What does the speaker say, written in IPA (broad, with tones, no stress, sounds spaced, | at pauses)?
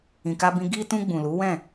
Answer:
ĩ˨ k a˧ b ĩ˧ ɡ i˧ t ũ˧ ɡ͡b ũ˨ l u˨˦ w ɛ̃˦˨